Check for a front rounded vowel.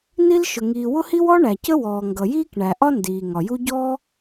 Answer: absent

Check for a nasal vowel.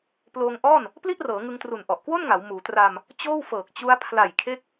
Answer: absent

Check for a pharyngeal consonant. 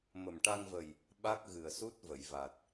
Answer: absent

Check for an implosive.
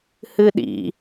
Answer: present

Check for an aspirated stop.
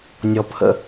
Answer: present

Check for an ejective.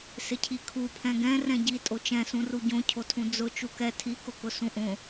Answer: present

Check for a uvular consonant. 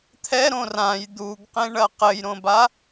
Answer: present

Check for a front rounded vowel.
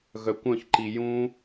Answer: present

